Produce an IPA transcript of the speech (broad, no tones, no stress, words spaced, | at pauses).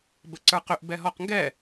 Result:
bəǀə˞qʏʔ bɛɦɔqŋɡɛ